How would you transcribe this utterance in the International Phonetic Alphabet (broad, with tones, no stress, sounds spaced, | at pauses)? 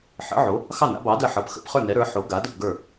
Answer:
ħ ə̰˨˥ ʕ o˨˥ | x ɑ˥˨ n a̰˨˥ b ɑ˨˥ d ə˥˨ ħ ɤ˨˥ p x ə̰˨˥ p χ ə˞˥˨ n ɛ˨˥ ɾ ə˞˨˥ ħ o˨˥ ɡ a˨˥ d ə˥˨ p ɡ ə˞˥˨